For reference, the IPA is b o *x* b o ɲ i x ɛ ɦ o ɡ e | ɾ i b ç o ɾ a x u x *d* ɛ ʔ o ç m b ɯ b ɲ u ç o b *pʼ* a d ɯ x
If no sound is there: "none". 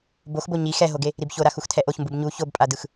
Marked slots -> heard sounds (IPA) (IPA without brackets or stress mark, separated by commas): x, tʰ, pʼ